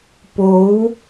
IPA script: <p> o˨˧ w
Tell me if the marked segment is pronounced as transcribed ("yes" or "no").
yes